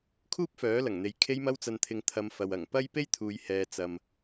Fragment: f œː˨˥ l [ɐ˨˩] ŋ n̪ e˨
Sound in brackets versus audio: correct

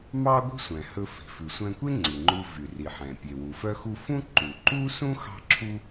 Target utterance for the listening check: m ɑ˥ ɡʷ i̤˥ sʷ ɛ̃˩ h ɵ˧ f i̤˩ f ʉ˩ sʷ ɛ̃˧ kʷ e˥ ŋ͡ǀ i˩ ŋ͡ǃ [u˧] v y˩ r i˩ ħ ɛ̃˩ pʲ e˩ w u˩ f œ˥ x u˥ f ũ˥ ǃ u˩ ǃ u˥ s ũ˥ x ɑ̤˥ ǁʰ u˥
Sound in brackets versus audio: correct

